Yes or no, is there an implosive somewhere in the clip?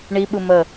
yes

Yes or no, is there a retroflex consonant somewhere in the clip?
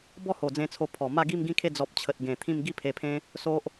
no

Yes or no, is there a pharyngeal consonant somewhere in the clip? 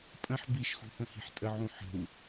yes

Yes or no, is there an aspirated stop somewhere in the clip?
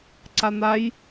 no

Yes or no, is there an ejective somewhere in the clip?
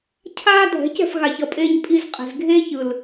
yes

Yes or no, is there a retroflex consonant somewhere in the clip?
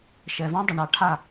yes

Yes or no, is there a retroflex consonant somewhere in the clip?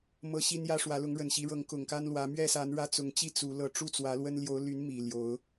yes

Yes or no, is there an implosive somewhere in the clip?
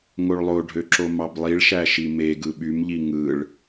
yes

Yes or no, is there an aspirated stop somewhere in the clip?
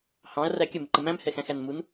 no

